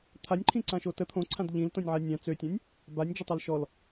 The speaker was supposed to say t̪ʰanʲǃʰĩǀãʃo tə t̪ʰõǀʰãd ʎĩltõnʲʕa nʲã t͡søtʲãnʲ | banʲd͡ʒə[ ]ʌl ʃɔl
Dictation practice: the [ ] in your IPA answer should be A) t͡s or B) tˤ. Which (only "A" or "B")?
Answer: B